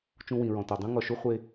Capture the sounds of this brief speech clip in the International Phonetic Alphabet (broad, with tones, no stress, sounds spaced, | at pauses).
t͡ʃ ũ˧ w ĩ˨ ɹ ɔ̃˨ t ɔ˨ dˤ ũ˦ ŋ ɔ˨ ʃ u˦ χʷ e˧